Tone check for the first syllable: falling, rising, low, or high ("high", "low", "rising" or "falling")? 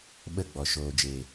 falling